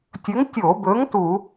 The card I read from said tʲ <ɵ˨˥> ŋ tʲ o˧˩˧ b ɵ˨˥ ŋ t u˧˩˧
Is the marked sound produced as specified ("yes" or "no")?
yes